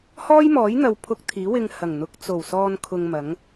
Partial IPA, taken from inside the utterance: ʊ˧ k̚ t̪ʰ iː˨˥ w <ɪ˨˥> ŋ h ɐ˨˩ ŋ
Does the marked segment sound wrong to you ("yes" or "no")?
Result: yes